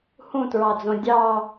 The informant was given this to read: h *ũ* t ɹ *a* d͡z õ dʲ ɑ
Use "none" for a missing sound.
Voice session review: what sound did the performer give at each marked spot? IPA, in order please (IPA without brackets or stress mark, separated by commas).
ũ, ɑ